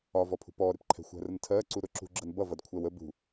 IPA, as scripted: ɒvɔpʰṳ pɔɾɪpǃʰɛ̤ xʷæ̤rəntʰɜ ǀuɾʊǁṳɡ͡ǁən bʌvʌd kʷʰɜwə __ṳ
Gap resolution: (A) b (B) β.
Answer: A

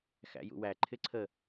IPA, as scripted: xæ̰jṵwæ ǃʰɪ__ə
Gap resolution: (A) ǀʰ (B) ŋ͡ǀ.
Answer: A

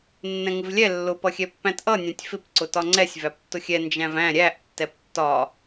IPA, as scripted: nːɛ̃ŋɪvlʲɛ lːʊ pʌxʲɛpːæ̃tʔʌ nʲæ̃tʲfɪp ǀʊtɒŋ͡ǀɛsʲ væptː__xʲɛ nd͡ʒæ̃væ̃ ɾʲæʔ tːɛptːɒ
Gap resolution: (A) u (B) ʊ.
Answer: B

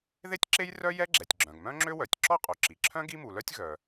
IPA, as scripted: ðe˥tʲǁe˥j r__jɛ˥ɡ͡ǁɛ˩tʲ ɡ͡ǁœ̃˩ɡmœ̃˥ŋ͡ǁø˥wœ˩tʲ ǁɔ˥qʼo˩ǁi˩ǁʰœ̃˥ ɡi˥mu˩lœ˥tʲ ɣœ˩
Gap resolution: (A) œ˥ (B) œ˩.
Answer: A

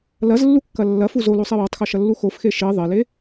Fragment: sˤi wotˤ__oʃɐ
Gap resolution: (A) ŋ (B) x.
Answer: B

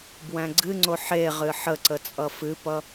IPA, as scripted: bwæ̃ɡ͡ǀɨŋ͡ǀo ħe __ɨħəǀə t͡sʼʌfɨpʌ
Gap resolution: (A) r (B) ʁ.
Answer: B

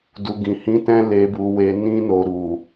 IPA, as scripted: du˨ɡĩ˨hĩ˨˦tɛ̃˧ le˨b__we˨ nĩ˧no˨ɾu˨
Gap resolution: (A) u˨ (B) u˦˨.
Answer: A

